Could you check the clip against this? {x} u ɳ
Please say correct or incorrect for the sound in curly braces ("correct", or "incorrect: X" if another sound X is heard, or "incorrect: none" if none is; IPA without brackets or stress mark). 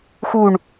correct